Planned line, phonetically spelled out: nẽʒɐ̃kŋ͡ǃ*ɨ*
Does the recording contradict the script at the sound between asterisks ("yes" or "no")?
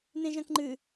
no